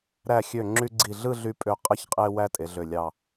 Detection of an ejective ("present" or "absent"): present